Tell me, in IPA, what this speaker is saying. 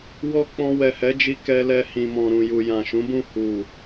w ɔ˧ k͡p ɔ̃˧ w ɛ˨ h ɛ˨˦ d͡ʒ i˧ k ɛ˧ l ɛ˧ h ĩ˨ m ɔ̃˨ ɾ ũ˨ j u˨ j ã˨ ʃ ũ˨˦ b ũ˦˨ h u˨

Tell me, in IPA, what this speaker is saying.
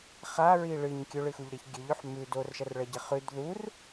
χ a ɹ i ɭ ɨ ɲ kʲ ɵ ɭ ɨ x u ʎ ɾ e ç ɡʲ ɵ ʎ ɵ ħ m ʉ d o r ʃ ɐ r ɭ ɐ ɟ ɐ χ ʉ d ð u r

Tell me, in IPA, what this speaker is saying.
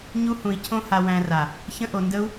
ɲ u˦ h ũ˧ i̯ cʰ õ˦ h a˧ w æ̃˧ r a˨ | ç ə̃˦ ʔ o˧ n d ə˦ u̯

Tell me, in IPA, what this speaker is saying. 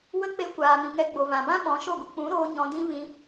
w ə˦ k͡p e˦ kʷ aː˨ m ĩ˨ ŋ ɛ˧ ɡ͡b o˨ v ã˨ b ã˦ ɓ ɔ̃˨˦ ʃ o˦˨ ɡʷ ə˧ k͡p ũ˨˦ ɾ oː˧ ɲ ɔ̃˧ d ĩ˦ v ĩ˧

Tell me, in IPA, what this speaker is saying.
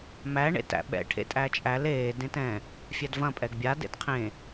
m æ ɳ ḛ t æ̰ ɓ ɛ̰ ʈʰ ḛ tʼ æ t͡ʃʼ æ l eː d ẽ t ɛ̃ | fʲ æ d v ɐ̃ pʼ ɛ ɡ bʲ a d ḛ d qʰ ẽ

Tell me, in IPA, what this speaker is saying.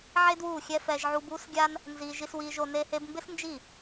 ʕ e˦ d w uː˦˨ xʲ ɛ˦ f ɛ˧ ʒ ʕ u˧ b uː˦ s ɡʲ a˦ n | n z iː˧ ʒ i˦ s w iː˦ ʒ o˦ n e˧ h e˧ b m b ɪ˦ s n d͡ʒ i˦˨

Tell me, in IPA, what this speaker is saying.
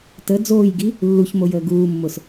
t ə d͡z oː j ɡ i | lː u ç m o j əː ɡ uː mː ʊ s

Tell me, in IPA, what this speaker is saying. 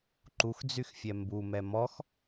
ǃ u x d͡z y x fʲ ɛ m b u m ɛ m ɔ x

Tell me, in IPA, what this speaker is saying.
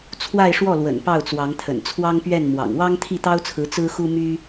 t͡sʰ w a˥˧ ɪ̯ ʂ w ɔ˥˩ l w ə̰˨˩ n p ɑ˥˩ ʊ̯ t͡s w ɑ˧˥ ŋ t̪ʰ ə̰˨˩ n t͡sʰ w ɑ˥ ŋ p ɥ ɛ˥˩ n m w ɑ̰˨˩ ŋ w ɑ˥ ŋ t̪ʰ i˥˩ t̪ ɑ˥ ʊ̯ t͡sʰ ɹ̩˧˥ t͡s ɹ̩˥ x u˥ m y˥

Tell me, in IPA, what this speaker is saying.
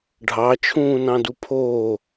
ɖʱ ɑ t͡ʃʰ ũː n ɑ̃ d u pʰ oː

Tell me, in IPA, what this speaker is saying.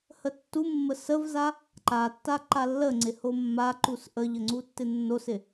h ə tː u mː ə s ə v z a | ǃ a tː a ǃ a lː ə ŋ͡ǀ ɪ h o mː a ǃ u s ʔ ə ʎ ə ŋ͡ǀ u tː ɪ nː o s ɪ

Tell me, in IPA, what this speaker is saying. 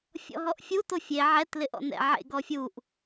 fʲ ɔ̰ ɦ ɔ ʔ fʲ u t o fʲ e ʕ ɛ t l ɪ ʔ ɔ̰ n ɛ̰ ʕ ḛ ɡ ɔ fʲ u ʔ

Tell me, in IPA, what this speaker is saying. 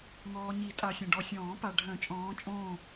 ŋ ɔː˨ ɲ i˨˩˦ tʼ a˨ sʲ ɐ̃˨ ɖ ɔ˨ sʲ ɔ̃ː˨˩˦ p a˨ ɖʱ œ̃˨˩˦ t͡ʃʼ ɔ̃ː˨˦ t͡ʃʼ õː˦˨

